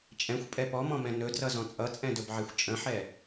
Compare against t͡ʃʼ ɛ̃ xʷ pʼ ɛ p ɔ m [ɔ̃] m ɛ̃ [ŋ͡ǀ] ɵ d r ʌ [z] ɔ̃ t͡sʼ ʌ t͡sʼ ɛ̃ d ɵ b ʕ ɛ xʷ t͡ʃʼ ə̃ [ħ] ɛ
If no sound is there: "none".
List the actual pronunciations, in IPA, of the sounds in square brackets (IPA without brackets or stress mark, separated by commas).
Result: ɔ̃, n, z, ħ